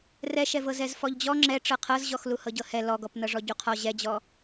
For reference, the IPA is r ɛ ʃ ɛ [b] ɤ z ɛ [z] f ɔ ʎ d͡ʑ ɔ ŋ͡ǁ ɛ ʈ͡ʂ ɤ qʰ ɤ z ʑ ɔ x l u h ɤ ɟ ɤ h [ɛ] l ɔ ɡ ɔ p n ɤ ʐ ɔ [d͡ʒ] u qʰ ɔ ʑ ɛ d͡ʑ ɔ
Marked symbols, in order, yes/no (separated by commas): no, yes, yes, no